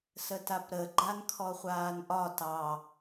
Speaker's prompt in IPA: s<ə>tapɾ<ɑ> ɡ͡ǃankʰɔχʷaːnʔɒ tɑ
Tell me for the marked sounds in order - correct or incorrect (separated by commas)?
correct, incorrect